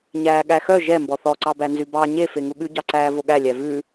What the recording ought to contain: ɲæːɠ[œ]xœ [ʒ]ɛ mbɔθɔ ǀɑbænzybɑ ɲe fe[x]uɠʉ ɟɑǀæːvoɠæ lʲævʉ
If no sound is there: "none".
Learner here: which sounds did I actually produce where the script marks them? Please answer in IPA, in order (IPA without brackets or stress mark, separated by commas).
æ, ʒ, ŋ